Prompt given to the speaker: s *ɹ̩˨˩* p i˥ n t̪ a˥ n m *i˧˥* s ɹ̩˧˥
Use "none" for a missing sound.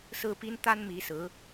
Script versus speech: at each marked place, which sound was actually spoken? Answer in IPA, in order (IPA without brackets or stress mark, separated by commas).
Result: ɹ̩˥, i˧˥